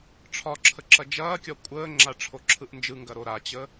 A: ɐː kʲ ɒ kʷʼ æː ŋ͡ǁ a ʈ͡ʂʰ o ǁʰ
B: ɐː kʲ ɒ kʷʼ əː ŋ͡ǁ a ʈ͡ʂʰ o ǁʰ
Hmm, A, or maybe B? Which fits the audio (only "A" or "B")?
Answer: B